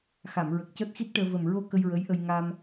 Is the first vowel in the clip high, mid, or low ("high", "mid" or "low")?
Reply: low